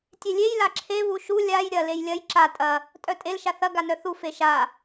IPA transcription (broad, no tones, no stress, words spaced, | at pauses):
tʲelʲej laǁʰe βuʃu lʲaj ɾʲɐ lejlʲɐj ǁa tʼɐ | tʼœtʼel ʃaθɐ ɡanœθu feʃa